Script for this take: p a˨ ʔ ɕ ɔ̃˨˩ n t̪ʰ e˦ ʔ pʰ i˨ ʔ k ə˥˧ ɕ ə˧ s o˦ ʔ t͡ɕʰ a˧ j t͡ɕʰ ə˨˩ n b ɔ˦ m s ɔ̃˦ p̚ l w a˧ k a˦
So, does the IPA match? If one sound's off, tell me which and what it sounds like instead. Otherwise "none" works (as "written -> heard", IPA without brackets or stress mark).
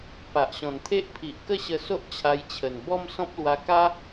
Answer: none